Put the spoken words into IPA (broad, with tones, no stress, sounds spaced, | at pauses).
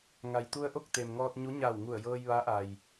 ŋ a˩ j t̪ u˧ ə̯ ʔ o˥˨ k̚ t̪ e˩ m ŋ ɔː˧ t̚ ɲ u˧˥ ɲ a˧˩ w ŋ u˧˩ ə̯ j ɤː˧ j ʋ a˧˥ ʔ a˩ j